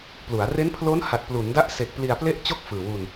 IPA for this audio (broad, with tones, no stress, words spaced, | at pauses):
plu˩˦a̯ re˦˥npʰlo˦˥nha˨˩t̚ plu˩˦nda˦˥ʔse˨˩k̚ pli˧a̯ple˥˩ʔt͡ɕo˥˩k̚ fɯː˨˩wu˧n